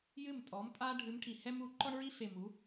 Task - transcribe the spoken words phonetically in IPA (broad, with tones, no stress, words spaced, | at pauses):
jɨ˥˩mtʼɔ˩˥mtʼa˥ ɖʱɨ˧˥mʈʰi˧˩hɛ˥m u˩˥ǃɔ˥ɳɹi˥fe˧˩ mu˩˥